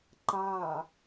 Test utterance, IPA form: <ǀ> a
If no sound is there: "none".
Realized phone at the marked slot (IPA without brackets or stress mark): ǃ